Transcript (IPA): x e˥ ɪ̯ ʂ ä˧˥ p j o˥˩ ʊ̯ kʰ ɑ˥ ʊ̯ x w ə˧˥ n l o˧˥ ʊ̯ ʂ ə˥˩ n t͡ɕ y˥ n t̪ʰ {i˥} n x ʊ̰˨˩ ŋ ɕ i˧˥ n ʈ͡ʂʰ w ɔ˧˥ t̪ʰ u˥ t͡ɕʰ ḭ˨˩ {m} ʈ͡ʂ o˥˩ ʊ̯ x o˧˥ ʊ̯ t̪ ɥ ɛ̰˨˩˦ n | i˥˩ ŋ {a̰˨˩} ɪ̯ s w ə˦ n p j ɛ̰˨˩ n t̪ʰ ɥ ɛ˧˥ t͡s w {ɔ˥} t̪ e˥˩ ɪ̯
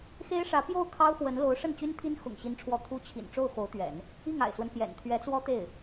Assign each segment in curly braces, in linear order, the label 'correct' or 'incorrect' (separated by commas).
correct, incorrect, correct, correct